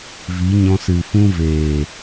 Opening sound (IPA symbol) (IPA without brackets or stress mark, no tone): v